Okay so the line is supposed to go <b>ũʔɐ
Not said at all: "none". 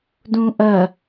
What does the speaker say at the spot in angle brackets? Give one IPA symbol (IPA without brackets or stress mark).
d